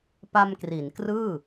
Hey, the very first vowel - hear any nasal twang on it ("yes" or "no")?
no